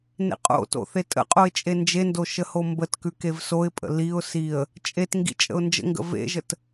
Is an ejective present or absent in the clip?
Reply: present